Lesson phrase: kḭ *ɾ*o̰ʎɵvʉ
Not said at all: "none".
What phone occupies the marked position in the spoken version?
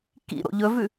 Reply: ɾ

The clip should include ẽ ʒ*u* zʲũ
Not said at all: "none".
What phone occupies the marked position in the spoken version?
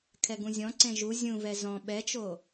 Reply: u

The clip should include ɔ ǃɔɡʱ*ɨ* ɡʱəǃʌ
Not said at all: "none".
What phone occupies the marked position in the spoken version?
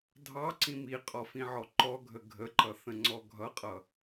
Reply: ə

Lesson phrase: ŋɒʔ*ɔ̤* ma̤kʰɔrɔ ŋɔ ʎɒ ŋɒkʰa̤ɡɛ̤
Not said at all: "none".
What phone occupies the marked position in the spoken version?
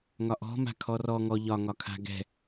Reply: ɔ̤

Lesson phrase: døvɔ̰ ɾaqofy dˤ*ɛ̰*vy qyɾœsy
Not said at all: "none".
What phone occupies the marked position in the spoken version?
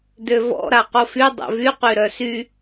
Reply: ɛ̰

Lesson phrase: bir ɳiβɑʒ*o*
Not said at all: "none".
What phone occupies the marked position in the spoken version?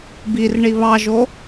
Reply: o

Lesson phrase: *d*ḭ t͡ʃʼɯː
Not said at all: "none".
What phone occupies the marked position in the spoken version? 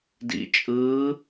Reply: d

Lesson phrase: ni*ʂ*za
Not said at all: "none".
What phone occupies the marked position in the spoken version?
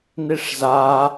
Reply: ʂ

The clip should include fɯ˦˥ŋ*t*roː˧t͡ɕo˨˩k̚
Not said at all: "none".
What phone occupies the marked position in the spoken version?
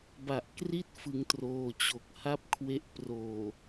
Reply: t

